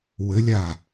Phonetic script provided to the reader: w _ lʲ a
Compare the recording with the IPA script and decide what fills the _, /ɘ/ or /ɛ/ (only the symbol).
ɘ